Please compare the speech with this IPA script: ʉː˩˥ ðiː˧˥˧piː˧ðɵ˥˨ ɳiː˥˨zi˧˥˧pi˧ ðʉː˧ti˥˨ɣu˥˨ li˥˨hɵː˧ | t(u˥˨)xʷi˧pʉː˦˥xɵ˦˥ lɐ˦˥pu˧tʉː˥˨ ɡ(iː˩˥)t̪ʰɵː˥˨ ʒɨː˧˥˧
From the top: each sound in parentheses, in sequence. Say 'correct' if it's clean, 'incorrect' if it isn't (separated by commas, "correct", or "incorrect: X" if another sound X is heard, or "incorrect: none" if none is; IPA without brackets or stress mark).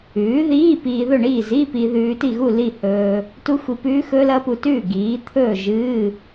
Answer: incorrect: u˦˥, correct